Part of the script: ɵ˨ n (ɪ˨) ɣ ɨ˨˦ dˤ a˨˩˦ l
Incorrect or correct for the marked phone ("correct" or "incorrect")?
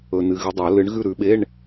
incorrect